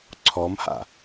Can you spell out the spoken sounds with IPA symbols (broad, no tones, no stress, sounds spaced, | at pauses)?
ǀʰ ɔ m h a̰